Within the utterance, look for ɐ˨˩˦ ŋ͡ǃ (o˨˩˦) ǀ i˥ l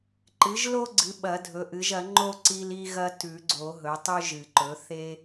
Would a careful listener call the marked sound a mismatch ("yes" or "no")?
yes